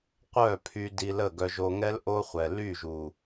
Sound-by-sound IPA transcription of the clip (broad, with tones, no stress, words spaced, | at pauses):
qʷœ˦˨pʰy˧ di˧lə˦˨ ɡœ˧ʒo˧ŋɛ˦l ʔo˦χʷɛ˨ ly˦˨ʒu˨